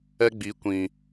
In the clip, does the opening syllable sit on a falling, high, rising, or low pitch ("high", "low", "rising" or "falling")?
high